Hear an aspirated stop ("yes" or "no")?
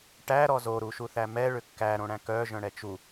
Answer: no